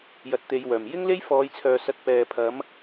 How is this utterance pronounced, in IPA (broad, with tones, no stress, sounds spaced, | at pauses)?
j ɐ˨˥ t̚ t̪ e˨˧ j w œː˨˩ m j ɪ˥ ŋ l e˥ j f ɔː˨˧ j t͡sʰ œː˨ s ɐ˧ t̚ p ɛː˨ pʰ ɐ˨˥ m